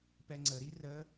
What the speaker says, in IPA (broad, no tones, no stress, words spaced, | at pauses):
pɛŋ͡ǀəɾi rə